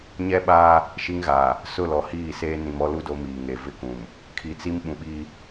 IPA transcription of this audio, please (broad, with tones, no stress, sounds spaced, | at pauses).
ɲ ɛ˦ ɓ aː˦ | ʃ i˦ ŋ ɣ aː˨ | s ʊ˦˨ l ɔ˨ h iː˦˨ s eː˦ n ĩ˨ m ɔ˦ l u˦ d o˦ m iː˨ ŋ e˨ v ɪ˦ k ũ˨ m | kʰ i˨ t͡s i˦ m ɓ ũ˨ ɓ iː˦